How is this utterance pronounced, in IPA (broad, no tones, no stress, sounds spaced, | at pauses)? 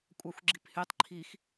kʷʼ ɑ xʷ ɡ͡ǁ i p h y tˤ ǃʰ i x